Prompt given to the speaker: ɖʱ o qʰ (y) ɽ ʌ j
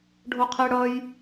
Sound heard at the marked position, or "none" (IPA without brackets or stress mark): e